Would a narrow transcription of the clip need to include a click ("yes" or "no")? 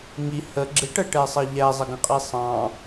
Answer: yes